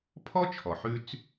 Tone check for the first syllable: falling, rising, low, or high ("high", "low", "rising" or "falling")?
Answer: high